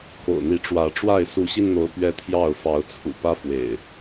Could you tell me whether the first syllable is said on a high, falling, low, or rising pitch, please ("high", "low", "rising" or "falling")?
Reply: low